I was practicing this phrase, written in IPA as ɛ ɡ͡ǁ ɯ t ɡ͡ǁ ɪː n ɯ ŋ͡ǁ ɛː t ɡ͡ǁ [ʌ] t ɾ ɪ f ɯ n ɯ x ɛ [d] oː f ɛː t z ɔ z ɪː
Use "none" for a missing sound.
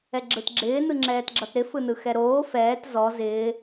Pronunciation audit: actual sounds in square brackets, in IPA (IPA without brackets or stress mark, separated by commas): ʌ, ɾ